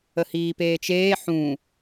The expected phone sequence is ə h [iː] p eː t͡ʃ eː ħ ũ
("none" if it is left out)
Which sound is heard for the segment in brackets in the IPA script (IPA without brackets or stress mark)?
iː